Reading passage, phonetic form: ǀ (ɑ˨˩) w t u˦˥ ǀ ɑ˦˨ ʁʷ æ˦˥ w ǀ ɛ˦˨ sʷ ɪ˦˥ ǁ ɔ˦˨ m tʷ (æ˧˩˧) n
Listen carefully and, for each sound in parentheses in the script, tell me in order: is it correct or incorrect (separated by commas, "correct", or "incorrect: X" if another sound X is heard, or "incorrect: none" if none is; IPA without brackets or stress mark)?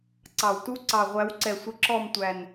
correct, incorrect: æ˨˩